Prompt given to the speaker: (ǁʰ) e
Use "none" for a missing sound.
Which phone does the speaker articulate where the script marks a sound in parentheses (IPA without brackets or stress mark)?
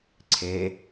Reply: ǀʰ